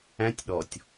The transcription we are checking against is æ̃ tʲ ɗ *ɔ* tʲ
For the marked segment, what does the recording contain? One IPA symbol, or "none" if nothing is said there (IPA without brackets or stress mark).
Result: ɔ